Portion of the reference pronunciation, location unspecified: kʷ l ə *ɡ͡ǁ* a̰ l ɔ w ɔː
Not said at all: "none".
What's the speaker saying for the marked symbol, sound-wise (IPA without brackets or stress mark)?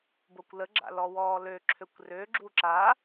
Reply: ɡ͡ǁ